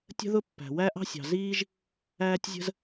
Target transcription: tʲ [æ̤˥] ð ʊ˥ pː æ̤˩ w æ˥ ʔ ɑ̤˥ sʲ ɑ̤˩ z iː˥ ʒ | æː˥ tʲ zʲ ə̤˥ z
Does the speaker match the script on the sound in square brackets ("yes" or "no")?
no